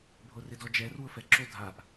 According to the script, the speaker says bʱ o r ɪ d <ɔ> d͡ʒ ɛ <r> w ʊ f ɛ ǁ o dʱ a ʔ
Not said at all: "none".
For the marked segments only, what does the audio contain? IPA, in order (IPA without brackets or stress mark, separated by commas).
ɔ, r